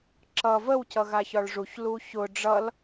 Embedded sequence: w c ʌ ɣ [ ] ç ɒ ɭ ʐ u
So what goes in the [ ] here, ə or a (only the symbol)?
a